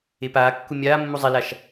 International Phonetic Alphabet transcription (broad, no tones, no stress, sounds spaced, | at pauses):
e p aː kː u mʲ aː mː u zˤ e l a ʃ